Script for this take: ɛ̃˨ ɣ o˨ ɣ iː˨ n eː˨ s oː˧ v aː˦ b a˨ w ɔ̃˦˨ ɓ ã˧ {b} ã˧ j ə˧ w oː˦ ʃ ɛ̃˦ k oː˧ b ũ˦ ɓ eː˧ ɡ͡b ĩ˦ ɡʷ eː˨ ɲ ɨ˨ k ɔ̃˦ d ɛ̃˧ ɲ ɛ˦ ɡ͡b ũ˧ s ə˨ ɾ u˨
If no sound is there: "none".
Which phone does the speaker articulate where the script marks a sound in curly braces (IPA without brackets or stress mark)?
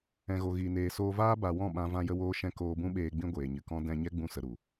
v